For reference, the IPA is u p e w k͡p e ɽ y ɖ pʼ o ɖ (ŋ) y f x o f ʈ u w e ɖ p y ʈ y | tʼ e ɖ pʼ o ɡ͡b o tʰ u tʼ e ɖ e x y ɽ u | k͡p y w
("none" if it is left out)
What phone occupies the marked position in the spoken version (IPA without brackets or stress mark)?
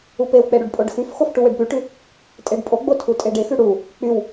x